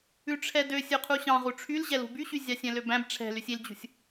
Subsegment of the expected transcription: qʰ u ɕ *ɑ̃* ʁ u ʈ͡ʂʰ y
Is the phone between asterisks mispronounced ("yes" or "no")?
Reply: no